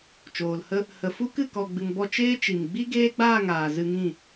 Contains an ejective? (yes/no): no